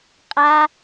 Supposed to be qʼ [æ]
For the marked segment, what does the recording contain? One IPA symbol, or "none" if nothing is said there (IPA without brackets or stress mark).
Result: a